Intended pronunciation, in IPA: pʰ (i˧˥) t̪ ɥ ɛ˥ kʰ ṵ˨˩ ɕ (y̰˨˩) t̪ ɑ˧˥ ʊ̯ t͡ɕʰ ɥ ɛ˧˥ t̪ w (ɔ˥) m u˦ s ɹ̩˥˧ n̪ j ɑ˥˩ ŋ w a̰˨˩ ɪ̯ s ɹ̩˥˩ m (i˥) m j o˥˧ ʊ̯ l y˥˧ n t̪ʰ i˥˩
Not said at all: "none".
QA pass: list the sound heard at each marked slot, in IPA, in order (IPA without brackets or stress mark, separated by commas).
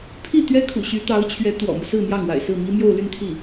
i˥˩, y˧˥, ɔ̰˨˩, i˥